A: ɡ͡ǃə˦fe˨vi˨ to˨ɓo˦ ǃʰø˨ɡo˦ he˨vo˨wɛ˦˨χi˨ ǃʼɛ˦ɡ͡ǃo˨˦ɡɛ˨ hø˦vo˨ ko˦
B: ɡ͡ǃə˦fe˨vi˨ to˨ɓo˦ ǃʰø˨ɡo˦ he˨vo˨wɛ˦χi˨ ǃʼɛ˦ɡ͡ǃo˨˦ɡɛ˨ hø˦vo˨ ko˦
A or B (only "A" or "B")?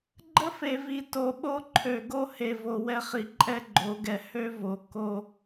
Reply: B